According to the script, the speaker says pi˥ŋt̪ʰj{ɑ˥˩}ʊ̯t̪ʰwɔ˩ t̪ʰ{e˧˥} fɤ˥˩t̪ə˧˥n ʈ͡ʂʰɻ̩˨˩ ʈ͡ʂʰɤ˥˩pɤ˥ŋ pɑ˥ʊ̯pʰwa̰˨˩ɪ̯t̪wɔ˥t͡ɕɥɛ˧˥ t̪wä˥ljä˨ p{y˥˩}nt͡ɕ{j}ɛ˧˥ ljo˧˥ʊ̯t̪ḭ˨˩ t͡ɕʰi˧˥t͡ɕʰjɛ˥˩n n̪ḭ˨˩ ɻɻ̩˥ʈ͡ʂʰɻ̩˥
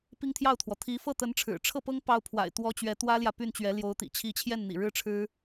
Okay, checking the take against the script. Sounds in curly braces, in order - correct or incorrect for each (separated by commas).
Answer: correct, incorrect, correct, incorrect